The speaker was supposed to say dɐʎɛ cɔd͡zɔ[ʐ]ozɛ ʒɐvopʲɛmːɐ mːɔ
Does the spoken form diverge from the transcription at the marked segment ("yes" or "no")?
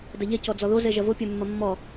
yes